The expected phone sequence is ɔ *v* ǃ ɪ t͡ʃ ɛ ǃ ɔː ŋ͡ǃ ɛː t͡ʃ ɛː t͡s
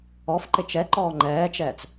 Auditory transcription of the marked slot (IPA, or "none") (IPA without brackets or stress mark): f